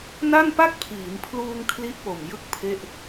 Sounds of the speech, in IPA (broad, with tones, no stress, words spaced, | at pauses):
na˥˩npa˥˩k̚pʰiː˩˦mpʰluː˧ŋ kʰli˦˥ʔpo˨˩m jɯ˥˩k̚pʰe˥˩ʔ